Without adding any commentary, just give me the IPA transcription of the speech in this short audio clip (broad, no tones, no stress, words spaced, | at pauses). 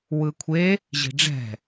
wɯkʷʰe | ʑi̤ɖ͡ʐɛ̤